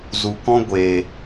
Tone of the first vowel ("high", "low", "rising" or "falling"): low